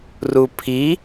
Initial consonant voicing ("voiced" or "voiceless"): voiced